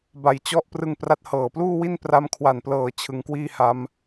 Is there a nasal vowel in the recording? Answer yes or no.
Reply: no